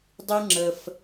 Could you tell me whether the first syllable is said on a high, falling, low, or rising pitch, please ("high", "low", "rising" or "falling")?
high